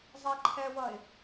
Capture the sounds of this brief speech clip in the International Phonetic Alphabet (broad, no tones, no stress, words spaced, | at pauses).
zˤɛǃʰɛwʌɪ̯